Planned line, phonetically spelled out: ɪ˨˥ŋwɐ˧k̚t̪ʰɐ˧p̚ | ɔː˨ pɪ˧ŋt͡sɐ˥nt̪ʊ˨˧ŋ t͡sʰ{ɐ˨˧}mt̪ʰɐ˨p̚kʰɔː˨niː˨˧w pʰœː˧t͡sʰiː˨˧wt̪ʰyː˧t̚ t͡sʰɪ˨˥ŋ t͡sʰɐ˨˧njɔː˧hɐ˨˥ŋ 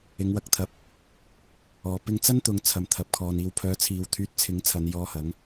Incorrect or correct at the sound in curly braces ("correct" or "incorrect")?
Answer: incorrect